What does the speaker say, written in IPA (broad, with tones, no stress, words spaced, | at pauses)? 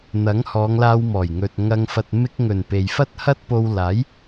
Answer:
n̪ɐ˨˥ŋhɔː˨˧ŋlaː˧w mɔː˨˩jŋɵ˨t̚ŋɐ˧ŋ fɐ˨t̚ mɪ˧k̚ŋɵ˨˩n pe˨jfɐ˥t̚ hɐ˥t̚po˧w laː˨˥j